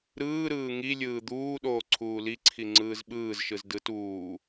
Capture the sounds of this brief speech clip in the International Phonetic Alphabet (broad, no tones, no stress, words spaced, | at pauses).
ɾɯː ɾɯːŋilʲɯː d̪uːɗoː ǀʰuːliǀʰi ŋ͡ǀɯːzɓɯːzʃɯz dɯt uː